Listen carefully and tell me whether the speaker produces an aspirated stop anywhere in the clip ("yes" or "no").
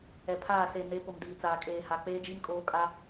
yes